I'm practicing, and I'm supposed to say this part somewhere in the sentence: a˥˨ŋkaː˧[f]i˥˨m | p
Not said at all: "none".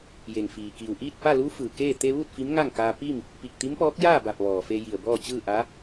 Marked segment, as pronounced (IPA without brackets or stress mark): p